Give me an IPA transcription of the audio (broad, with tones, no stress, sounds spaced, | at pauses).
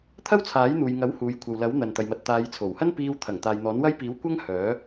t̪ʰ ɐ˥ w t͡sʰ aː˨˥ j n̪ uː˨ j ŋ ɐ˨˥ w h uː˨ j kʷʰ ɐ˨ w l ɐ˨˥ w n̪ ɐ˨ n t̪ ɐ˨ j m ɐ˨ t̚ t̪ aː˨˧ j t͡sʰ o˨˩ w h ɐ˥ n p iː˧ w t̪ʰ ɐ˨˩ ŋ t̪ aː˨ j n̪ ɔː˨˥ n w ɐ˥ j p iː˨˥ w kʷ ɐ˥ ŋ h œː˨˥